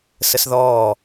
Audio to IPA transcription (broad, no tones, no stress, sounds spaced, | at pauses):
s ə s ð ɔː